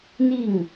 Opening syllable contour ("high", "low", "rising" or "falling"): falling